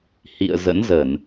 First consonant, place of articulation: glottal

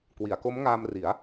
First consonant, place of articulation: velar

